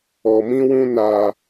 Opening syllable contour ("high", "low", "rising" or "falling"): low